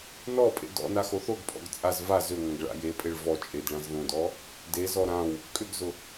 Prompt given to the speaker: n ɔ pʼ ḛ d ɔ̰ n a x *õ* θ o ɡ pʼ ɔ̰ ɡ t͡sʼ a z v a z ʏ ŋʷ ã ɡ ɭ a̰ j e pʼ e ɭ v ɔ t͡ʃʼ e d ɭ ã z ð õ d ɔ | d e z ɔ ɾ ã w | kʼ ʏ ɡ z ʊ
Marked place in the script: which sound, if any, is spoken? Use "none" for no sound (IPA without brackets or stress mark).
o